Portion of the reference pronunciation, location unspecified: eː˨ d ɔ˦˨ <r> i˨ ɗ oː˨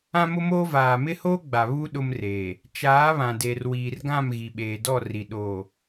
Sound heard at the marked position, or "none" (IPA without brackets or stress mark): r